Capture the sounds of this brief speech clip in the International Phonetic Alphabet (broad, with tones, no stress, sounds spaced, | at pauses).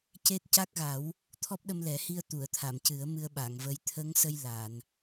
c e˦˥ t̚ c a˦˥ k̚ ɣ a˨˩˦ w | t̪ʰ ɔ˦˥ p̚ ɗ ə˧ m l ɛ˨˩˦ h i˧ ə̯ t̪ u˨˩˨ ə̯ t̪ʰ a˨˩˨ m c ɨ˨˩˦ ə̯ m ɨ˧ ə̯ ɓ a˨˩˨ ŋ v ə˧˥ j t̪ʰ ə˧˥ ŋ s ə˧ j l a˨˩˨ n